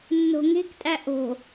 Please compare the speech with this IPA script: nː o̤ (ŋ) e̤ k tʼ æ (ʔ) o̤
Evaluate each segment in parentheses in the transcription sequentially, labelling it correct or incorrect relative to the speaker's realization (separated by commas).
correct, correct